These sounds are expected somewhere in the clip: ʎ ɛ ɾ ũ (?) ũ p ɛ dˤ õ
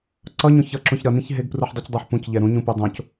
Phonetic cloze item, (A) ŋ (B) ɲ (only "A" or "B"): B